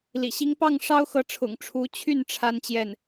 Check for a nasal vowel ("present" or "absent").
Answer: absent